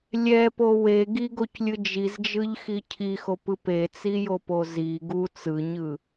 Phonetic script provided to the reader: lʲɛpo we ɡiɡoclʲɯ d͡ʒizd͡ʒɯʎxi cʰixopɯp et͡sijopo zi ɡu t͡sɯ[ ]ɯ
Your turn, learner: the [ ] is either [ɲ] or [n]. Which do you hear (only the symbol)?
ɲ